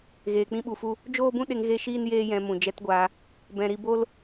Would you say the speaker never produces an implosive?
no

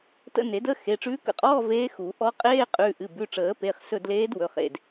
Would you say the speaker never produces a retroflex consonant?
no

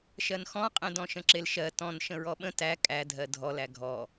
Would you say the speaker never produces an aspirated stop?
yes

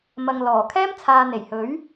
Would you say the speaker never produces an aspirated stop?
no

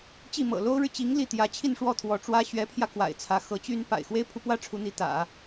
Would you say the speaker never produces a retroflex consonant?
no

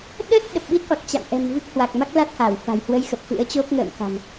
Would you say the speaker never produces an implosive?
no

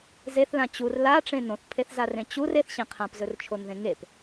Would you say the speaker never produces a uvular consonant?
no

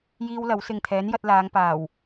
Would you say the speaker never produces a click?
yes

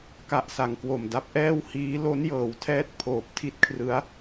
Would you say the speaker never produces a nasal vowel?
yes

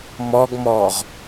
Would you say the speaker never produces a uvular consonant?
no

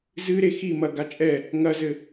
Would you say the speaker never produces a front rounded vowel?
yes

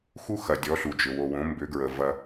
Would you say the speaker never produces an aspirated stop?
yes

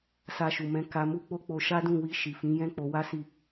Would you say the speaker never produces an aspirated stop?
yes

